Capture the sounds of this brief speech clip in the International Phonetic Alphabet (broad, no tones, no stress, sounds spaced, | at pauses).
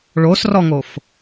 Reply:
ɭ o s r ɔ ŋ o f